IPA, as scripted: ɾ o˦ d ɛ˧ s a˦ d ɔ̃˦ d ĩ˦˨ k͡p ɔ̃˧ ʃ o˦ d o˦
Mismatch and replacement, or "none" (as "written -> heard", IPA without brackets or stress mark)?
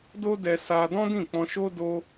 ɾ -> d